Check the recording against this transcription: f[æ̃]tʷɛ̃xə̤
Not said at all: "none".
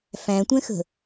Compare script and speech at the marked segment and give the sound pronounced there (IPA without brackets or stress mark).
æ̃